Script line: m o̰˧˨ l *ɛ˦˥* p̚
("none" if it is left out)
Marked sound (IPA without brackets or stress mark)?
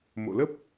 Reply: ə˦˥